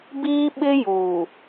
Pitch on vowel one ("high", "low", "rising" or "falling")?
high